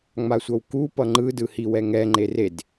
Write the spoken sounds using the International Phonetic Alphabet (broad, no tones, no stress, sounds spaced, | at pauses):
ŋ͡m a sʷ ʌ w k u p ʌ ŋ͡ǃ ɯ d ɯ h i w ɛ ŋ ɛ ŋ͡ǃ e r e d